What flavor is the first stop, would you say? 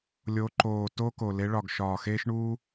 click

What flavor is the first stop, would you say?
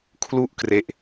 aspirated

